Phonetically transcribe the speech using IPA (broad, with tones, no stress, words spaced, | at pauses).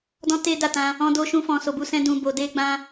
dɔ̃˦te˦da˦˨tã˧ | ɔ̃˦do˦ʃũ˦ fɔ̃˧so˧bu˦sɛ̃˦ dũ˧bo˧de˦ ɡ͡bã˦